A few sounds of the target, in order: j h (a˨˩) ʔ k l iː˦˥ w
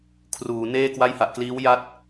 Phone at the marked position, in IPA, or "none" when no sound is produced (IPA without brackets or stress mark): a˨˩